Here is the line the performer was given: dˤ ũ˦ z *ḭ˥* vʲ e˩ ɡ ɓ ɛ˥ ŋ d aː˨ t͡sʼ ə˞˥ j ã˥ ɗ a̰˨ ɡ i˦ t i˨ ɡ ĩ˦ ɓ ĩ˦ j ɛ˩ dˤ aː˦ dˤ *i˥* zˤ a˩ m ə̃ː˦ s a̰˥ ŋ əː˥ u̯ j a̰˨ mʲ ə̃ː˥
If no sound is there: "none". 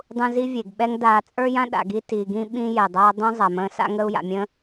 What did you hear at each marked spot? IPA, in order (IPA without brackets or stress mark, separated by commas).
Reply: i˥, ĩ˥